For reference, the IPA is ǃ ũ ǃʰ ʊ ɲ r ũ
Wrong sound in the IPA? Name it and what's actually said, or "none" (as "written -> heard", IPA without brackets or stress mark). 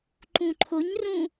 none